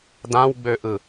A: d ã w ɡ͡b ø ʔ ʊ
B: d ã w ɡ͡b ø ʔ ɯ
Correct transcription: B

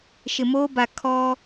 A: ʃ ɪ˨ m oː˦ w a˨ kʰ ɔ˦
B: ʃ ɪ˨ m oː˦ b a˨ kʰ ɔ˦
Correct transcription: B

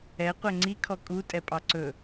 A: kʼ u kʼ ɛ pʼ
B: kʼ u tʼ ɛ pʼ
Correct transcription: B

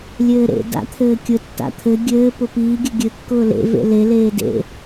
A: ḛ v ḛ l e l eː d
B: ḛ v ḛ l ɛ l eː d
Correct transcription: A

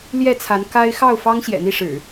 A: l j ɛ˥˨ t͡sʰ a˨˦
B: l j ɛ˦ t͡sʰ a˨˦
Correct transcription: A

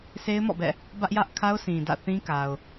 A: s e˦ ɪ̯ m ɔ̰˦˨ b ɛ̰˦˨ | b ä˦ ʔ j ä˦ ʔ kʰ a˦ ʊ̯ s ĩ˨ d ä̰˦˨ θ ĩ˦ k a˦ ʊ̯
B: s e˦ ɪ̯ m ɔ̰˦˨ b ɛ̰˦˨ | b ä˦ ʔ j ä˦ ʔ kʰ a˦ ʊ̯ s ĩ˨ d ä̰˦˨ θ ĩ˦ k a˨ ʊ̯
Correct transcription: B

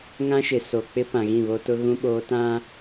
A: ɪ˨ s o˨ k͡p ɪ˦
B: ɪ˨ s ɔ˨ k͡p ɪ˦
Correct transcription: A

